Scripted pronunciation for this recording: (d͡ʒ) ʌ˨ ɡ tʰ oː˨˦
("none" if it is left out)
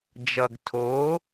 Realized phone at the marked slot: d͡ʒ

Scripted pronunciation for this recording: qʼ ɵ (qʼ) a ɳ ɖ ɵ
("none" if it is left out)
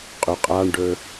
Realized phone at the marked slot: qʼ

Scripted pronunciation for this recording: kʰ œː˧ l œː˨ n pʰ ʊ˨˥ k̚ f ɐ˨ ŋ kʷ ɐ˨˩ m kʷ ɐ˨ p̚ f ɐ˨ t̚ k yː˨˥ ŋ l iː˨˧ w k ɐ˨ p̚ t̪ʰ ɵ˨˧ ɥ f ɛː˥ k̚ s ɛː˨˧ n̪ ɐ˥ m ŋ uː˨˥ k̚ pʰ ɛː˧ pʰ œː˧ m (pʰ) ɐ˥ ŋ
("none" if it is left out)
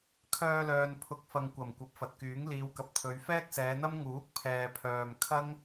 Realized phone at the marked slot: kʰ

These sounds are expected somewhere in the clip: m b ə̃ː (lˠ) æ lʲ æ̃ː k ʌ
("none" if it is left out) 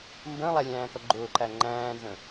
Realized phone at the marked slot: lˠ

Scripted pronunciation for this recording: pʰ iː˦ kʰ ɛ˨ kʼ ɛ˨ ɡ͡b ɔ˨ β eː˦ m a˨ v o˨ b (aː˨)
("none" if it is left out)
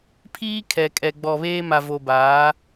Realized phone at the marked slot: aː˨˦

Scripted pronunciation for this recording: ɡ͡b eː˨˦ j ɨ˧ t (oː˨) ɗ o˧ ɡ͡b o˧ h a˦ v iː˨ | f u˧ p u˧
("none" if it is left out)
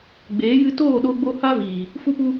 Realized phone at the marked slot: oː˦˨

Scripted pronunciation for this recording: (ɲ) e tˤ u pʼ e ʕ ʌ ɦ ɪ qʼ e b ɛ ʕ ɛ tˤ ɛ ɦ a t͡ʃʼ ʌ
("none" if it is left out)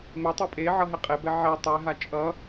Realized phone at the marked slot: m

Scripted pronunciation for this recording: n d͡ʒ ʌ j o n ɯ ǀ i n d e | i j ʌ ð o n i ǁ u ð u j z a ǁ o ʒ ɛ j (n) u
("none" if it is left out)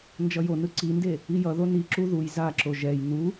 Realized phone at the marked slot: n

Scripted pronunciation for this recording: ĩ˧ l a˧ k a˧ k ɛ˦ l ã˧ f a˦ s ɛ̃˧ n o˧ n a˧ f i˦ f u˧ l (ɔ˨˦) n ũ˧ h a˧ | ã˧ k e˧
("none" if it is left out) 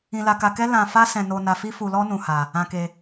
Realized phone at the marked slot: ɔ˦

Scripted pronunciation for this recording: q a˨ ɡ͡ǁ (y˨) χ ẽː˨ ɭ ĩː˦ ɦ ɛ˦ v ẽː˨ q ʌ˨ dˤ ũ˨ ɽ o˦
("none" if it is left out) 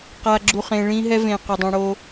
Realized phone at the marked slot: u˨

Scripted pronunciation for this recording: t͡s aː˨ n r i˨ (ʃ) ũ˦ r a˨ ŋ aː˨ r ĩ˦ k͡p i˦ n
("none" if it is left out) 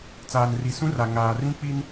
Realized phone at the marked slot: s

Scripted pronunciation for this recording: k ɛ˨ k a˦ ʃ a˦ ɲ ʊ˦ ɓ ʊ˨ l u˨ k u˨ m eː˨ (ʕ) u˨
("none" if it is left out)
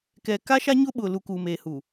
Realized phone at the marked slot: h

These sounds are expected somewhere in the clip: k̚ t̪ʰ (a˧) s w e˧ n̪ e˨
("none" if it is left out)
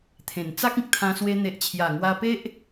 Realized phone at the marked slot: ã˧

